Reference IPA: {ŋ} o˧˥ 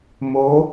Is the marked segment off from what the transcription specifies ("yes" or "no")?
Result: yes